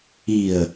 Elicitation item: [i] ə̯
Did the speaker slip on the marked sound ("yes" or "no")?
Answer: no